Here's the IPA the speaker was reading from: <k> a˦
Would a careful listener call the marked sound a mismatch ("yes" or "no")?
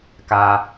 no